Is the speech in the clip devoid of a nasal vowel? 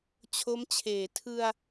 yes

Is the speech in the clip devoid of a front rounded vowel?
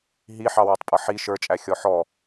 yes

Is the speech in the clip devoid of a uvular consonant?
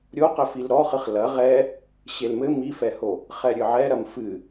no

